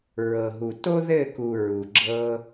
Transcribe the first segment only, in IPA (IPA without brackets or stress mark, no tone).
ɹ